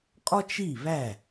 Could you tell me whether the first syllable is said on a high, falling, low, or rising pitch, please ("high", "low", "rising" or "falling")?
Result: high